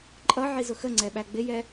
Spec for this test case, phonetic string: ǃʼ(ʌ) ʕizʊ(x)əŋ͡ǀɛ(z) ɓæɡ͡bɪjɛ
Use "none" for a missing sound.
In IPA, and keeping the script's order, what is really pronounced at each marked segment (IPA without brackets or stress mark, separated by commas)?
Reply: ʌ, x, none